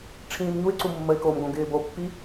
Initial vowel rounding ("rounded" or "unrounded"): unrounded